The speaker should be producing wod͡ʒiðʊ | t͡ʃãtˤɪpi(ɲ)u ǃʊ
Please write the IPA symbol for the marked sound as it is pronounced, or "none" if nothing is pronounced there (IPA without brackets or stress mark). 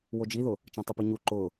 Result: ɲ